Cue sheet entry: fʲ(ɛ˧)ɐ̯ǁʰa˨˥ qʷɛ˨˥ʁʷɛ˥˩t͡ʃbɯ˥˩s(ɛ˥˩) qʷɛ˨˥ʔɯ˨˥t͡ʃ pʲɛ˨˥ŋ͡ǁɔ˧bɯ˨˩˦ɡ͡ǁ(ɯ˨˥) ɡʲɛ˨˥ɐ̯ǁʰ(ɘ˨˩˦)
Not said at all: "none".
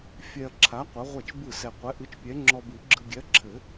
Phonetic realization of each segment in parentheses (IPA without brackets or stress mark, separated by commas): ɛ˧, ɛ˧, ɯ˧, ɘ˨˩˦